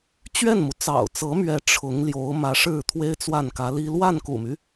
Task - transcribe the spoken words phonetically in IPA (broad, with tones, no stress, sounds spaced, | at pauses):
t͡ɕ ɥ ɛ˥˩ n m u˩ t͡s ɑ̰˨˩ ʊ̯ t͡s ɤ˧˥ m ɥ ɛ˧˥ ʈ͡ʂʰ ʊ˧˥ ŋ l j o˧˥ ʊ̯ m ä˧˥ ʂ ɻ̩˥˩ t̪ʰ w e˥ ɪ̯ t͡s w a˥˩ n k ä˧˥ l i˥ l w a˥˩ n k ṵ˨˩ m y˦